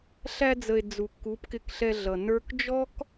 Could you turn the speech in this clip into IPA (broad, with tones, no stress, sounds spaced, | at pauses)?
ɬ æ˧ d͡z ə˨ e̯ d͡z u˨ kː u˨˦ p k ɪ˧ k ɬ ɛ˧ ɮ ʌ˨ n ə˞˦ k d͡ʒ ɔ˦ k